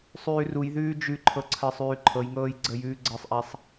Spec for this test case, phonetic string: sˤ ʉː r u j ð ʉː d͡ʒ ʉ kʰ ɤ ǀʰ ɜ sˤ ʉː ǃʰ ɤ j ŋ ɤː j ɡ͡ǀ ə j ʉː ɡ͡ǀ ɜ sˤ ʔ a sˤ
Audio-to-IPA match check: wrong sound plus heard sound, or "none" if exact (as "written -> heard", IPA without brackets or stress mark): kʰ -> ǃʰ